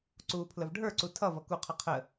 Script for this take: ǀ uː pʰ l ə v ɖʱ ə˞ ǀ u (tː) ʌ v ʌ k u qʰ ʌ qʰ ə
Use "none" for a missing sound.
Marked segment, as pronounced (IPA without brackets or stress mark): tʰ